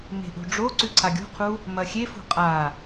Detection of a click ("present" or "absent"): present